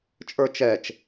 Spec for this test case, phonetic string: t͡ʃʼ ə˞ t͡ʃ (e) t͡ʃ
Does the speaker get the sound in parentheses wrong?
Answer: yes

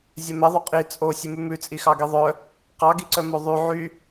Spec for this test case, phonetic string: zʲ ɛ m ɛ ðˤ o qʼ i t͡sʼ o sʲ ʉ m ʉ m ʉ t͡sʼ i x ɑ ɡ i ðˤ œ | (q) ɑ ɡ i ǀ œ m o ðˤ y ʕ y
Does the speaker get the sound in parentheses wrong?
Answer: no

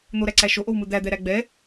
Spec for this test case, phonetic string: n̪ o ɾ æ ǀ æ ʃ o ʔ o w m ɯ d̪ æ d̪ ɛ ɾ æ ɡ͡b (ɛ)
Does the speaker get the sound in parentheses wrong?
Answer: no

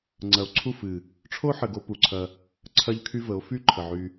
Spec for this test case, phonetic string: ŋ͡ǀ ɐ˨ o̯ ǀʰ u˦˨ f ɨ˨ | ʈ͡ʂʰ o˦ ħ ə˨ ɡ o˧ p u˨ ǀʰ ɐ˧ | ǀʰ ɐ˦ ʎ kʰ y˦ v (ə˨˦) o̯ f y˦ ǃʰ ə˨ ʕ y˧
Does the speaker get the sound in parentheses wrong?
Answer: no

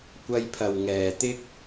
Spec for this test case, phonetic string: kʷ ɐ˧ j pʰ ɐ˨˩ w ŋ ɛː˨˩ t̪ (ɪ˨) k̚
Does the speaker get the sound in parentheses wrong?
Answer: yes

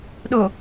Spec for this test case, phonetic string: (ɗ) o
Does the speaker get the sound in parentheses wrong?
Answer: no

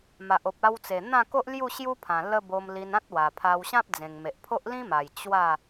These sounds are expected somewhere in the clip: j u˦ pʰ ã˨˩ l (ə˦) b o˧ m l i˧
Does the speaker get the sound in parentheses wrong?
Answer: no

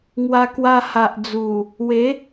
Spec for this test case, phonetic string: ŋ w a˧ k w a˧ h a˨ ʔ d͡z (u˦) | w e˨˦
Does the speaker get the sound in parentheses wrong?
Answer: yes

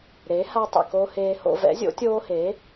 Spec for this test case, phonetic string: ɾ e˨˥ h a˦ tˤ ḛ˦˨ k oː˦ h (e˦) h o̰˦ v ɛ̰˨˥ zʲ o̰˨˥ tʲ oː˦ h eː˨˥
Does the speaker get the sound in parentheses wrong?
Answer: yes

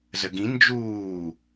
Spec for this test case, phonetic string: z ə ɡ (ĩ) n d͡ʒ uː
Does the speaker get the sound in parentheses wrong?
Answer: no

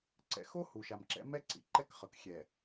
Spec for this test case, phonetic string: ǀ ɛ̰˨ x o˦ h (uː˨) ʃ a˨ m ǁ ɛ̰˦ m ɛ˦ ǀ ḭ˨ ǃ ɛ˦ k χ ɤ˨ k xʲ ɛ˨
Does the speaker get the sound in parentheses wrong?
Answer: yes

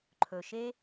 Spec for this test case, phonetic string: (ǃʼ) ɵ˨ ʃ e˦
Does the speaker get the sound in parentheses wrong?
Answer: yes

